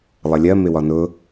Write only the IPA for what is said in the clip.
lˠʌlʲɜ mɪwɒnʊ

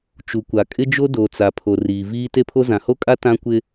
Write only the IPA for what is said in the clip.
t͡ʃu˨kʷa˨kʼɪ˦d͡ʒo˦ do˨ t͡sa˨pʰo˨ riː˨viː˦ te˦pʰo˦ zã˨ho˦kʼa˦ tã˦kʷɪ˦

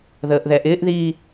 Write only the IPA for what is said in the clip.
ðəːʔðɛʔɪːʔðiː

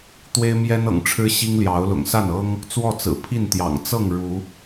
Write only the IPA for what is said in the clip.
t̪we˦ɪ̯mjɛ˦nɤ̰˨˩ŋʈ͡ʂʰɻ̩˦ ɕi˦ŋ ljɑ˨˦ʊ̯lʊ̰˨˩ŋ sa˥˨nɤ˦ŋ | t͡swɔ˥˨t͡sɹ̩˨˩ pʰi˥˨nt̪jɑ̰˨˩ŋ t͡sɤ˥˨ŋ ɻu˨˦

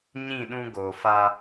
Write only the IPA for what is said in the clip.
ɲĩ˦˨ɗũ˦ ɡo˨ fa˦

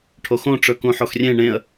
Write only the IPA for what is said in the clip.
ʈʰoxõ ʈ͡ʂɵkũħoxrʲẽ ɳẽə̯

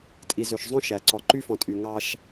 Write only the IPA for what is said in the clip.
tʼi˨zø˨ʃzˤõ˦ ʃæ˨ ǀɔ˨ǃy˦fɔ̃˨tʼy˨ ŋɑ˦ʃ

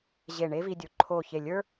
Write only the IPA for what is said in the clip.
ʑe˧˩ɳe˥vi˧ dʲo˩˧ǃʰo˧˩ çe˧˩lʲə˞˥

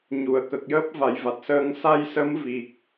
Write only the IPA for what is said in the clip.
ɲu˨˩˨ə̯kə˨˩k̚jəː˦˥p̚ va˨˩˦jva˨˩t̚ səː˧ŋ sa˧jsə˧˥m vi˨˩k̚

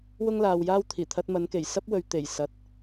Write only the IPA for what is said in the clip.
wʊ˥ŋlaː˨wjaː˥wt̪ʰiː˨˩ t̪ʰɐ˧t̚mɐ˨˧nke˨˩j sɐ˥p̚wɵ˨ɥt̪e˨˩j sɐ˨˥t̚

